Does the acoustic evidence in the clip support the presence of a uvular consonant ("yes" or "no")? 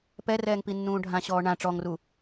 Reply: no